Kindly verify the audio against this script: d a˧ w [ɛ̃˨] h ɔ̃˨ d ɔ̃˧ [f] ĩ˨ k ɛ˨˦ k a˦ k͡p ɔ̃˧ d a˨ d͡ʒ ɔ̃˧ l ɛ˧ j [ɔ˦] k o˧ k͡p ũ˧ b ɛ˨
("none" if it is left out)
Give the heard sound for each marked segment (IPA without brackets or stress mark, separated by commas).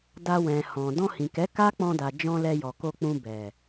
ɛ̃˨, h, ɔ˨